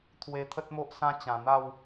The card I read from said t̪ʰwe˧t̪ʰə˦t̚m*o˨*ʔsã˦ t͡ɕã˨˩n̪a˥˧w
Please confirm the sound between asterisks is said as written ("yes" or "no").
no